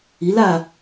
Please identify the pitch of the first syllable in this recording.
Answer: rising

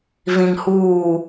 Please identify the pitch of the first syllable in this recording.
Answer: low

